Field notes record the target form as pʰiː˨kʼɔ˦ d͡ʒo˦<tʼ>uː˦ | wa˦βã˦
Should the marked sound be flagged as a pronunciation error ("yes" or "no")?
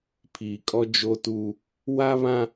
yes